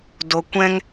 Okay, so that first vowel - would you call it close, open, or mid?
mid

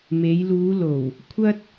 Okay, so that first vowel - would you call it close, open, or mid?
mid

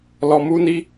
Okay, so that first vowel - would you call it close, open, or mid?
mid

